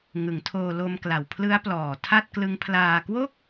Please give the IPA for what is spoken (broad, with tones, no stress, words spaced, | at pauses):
ŋɯ˩˦ŋtʰoː˧ lo˧m kla˨˩wpʰlɯ˦˥a̯plɔː˨˩ tʰa˥˩t̚klɯ˦˥ŋpʰlaː˧ kwo˥˩k̚